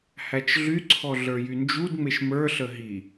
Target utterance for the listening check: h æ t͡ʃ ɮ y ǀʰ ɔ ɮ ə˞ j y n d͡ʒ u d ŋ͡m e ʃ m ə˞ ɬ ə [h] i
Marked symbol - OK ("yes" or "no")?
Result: no